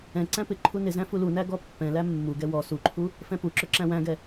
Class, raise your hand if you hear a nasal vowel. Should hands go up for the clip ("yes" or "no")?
yes